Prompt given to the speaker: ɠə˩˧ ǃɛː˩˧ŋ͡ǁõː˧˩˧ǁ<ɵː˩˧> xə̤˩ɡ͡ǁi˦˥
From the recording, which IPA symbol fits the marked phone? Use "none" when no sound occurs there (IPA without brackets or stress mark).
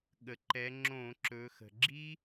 ɵː˩˧